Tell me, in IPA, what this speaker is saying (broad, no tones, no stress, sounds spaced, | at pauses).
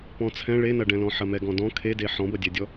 p ɔ̃ t͡sʰ ɛ̃ ɭ e n ɐ ɖ ɛ̃ l ɔ̃ ħ ɐ m ɛ ɡ ɔ̃ d ɔ̃ kʰ e d e ħ ɔ̃ b ɐ dʲ ɛ dʲ ɔ